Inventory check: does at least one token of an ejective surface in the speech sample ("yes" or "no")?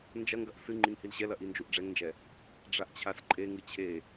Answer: yes